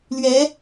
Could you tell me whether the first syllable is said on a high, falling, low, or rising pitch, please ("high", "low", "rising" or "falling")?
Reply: rising